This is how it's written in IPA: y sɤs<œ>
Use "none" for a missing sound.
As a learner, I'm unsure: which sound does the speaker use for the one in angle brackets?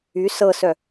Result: œ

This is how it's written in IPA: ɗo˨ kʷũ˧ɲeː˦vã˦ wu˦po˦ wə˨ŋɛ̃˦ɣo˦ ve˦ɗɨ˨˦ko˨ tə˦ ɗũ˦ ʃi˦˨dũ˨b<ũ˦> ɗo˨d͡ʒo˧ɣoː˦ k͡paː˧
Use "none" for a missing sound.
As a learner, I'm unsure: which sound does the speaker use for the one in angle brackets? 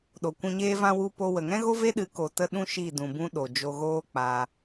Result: ũ˦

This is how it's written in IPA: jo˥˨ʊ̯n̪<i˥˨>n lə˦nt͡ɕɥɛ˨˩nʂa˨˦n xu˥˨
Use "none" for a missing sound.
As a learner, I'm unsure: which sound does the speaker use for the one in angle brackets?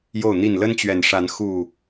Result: i˥˨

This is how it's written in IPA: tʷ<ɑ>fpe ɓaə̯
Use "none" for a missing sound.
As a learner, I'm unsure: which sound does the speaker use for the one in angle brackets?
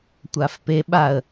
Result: a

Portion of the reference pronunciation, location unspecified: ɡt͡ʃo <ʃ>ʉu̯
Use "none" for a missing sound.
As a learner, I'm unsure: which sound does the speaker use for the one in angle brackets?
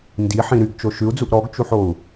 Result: ʃ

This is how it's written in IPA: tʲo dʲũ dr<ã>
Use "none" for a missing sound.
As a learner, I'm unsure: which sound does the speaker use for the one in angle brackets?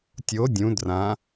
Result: ã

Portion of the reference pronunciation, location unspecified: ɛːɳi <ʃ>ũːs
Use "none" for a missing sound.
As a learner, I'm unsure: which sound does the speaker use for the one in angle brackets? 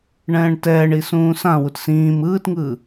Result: s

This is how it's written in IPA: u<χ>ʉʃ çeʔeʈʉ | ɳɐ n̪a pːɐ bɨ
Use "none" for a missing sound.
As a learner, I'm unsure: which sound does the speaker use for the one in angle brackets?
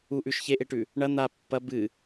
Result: ʔ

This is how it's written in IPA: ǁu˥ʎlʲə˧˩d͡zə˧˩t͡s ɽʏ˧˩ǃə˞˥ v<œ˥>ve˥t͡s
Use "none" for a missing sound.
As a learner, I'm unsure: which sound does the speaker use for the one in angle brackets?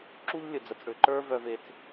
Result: œ˥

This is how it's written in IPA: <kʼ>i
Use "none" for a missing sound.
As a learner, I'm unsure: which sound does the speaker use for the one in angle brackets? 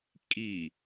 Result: kʼ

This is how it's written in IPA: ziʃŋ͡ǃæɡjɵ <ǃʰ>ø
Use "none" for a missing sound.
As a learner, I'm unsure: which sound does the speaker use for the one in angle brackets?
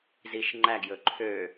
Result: ǃʰ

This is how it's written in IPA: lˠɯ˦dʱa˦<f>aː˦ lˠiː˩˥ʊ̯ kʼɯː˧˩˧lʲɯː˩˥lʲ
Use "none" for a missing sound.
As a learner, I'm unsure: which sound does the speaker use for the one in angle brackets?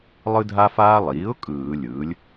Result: f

